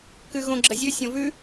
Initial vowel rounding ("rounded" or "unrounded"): rounded